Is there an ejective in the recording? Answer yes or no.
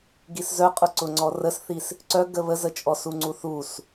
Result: yes